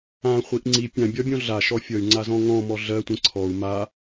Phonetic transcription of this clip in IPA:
ãχʷiʔ ŋ͡ǀi pʲãbʲɒbʲɔ̃ ɮaʃɔ fʲʌy̯ŋ͡ǀazɔ̃ ŋɔ̃mɔ ɮɜtʷẽ ǀʰɔu̯ ma

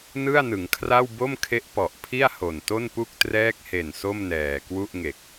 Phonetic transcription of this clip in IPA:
nɯ˥˩a̯nɯ˩˦ŋkʰra˥˩w bo˥˩mkʰe˦˥ʔpɔ˨˩ʔpʰi˥˩a̯ ho˨˩nto˥˩npu˥˩k̚ trɛː˦˥k̚he˨˩n so˥˩mnɛː˨˩kwu˥˩ʔ ŋe˨˩k̚

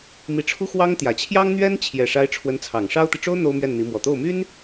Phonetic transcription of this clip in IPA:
mi˧˥ʈ͡ʂʰu˥xwɑ˥ŋt̪jä˨˩ t͡ɕʰjɑ˥ŋn̪ɥɛ˥n t͡ɕʰjɛ˨˩ʂa˧˥ɪ̯ ʈ͡ʂʰwə˧˥nt͡sʰɑ˨˩ŋʂɑ˥ʊ̯t̪i˨ ʈ͡ʂo˥ʊ̯ n̪o˥ʊ̯mɥɛ˥˩nn̪i˧˥ mwɔ˨˩t̪o˥˩ʊ̯my˥n

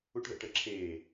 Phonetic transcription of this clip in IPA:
uʈðə̰ʈəǁʰeː

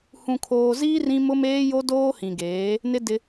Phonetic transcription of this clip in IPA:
hũ˨kʰoː˨ziː˦ rĩ˦ mʊ˦meː˦ jo˦doː˦hĩ˨ɡeː˨˦ | nɪ˦dɪ˦

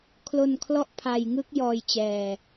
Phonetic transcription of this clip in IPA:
kʰlo˧n kʰlɔ˦˥ʔpʰa˧jŋɯ˦˥k̚jɔː˧j t͡ɕɛː˧

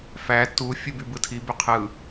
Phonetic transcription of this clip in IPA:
fæ tu fʲubybɯtʰi byqʰɯ

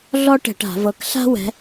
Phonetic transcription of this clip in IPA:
ɮɔ˥ʈɛ̤˧˩˧ʈa̤˧˩˧ vɤ˨˦kɬa̤˥wɛ̤˨˦

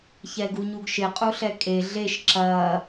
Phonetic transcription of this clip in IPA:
çɛɡuɲuɡʃɪ qʼuɬɛkʼe ɮeʃ ǁɐː

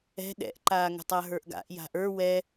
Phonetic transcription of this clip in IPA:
ɛ̤ ɗɛ̰ʔǃaːŋə̤tˤa ɦə˞ʔɡa̰ʔ ja̤ʔə˞ wɛ

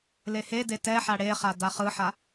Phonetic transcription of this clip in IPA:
lehede tɛħa ɽeχa daχɯħa

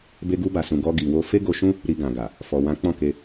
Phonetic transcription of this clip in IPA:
be˧ɡu˧ba˨sũ˨ ɡɔ˧ɡi˨wo˧ fe˦ɡo˧ʃũ˦ | ɾi˧ɡã˨ɡa˨ | fɔ˨wã˨˦ k͡pɔ̃˦˨ke˧

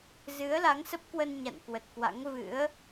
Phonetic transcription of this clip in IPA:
zɨ˨˦ə̯la˨˦ŋsə˦˥p̚kwə˧n ɲa̰˧˨n kwə˨˩t̚kwa̰˧˥ŋ vɨ̰˧˥ə̯

